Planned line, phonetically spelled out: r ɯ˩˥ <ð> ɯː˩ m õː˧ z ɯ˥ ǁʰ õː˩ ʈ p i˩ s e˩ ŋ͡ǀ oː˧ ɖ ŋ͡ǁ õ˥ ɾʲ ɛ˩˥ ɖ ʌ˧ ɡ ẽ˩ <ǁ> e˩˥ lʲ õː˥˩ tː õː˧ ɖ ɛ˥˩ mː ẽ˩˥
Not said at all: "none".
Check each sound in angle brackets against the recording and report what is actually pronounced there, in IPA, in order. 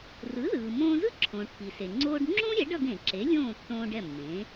ð, ǁ

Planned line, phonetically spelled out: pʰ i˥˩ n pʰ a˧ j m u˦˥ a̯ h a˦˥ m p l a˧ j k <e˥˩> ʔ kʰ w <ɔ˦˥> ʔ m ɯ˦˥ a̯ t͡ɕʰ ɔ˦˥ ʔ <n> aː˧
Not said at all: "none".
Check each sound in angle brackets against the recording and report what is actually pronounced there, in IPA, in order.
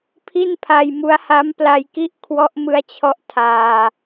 i˥˩, ɔ˦˥, tʰ

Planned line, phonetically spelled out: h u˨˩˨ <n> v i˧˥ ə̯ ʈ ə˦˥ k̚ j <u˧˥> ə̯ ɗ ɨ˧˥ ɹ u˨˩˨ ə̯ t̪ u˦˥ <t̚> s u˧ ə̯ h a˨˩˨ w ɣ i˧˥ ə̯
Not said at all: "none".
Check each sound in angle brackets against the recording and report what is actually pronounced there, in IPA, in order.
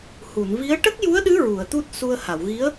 n, u˧˥, t̚

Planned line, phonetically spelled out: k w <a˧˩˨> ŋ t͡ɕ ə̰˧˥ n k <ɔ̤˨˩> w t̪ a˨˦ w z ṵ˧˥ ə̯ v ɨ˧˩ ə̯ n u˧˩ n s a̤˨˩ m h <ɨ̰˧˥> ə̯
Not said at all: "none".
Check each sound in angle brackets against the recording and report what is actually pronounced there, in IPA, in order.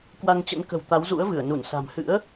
a˧, ə̤˨˩, ɨ̰˧˥

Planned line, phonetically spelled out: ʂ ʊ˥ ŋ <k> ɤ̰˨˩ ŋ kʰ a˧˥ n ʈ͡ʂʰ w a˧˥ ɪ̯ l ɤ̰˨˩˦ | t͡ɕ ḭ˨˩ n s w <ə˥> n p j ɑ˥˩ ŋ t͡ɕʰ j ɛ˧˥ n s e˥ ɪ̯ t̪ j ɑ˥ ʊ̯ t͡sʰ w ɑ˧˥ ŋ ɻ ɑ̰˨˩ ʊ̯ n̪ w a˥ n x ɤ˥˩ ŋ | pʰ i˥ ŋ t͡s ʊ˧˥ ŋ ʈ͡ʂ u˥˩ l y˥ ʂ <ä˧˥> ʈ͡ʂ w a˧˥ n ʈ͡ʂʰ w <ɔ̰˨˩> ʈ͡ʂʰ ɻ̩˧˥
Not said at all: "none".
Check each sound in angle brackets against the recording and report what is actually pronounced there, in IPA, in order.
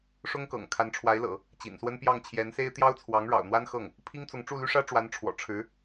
k, ə˥, ä˥, ɔ̰˨˩

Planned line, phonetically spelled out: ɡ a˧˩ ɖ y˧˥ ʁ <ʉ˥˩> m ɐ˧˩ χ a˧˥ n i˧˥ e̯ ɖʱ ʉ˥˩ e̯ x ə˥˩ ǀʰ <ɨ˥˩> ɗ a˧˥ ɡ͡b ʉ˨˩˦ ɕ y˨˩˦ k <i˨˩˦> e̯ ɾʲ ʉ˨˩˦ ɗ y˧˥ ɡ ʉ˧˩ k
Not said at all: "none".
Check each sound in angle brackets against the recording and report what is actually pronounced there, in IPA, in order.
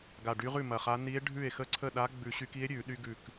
ʉ˥˩, ə˥˩, i˧˥

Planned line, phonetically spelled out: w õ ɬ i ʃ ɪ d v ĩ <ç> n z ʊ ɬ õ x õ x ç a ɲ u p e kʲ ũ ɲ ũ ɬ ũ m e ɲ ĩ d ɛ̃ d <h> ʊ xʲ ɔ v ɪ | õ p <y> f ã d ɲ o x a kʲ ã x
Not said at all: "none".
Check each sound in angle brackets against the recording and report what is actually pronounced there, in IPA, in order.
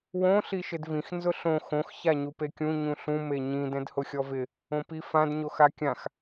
x, h, i

